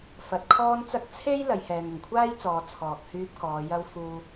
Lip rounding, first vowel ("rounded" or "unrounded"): unrounded